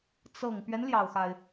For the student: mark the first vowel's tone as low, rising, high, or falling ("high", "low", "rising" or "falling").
low